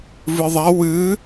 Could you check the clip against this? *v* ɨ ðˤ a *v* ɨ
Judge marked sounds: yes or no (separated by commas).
yes, no